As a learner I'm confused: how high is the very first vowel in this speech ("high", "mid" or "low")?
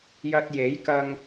low